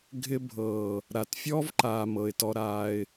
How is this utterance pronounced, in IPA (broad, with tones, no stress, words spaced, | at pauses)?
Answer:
ɡʱɪ˦bʱɤː˨ | ɾa˨t fʲɔ˦vǃa˨ mɤ˨ɪ̯tɔ˦ ɾaː˦ɪ̯